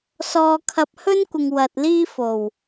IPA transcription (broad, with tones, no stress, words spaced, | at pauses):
sɔː˧kʰɐ˧p̚hɵ˥nkʷɪ˨ŋ wɐ˨t̚liː˥fo˨˩w